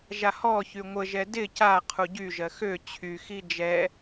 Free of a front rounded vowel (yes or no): no